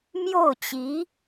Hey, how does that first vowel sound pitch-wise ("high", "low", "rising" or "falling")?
falling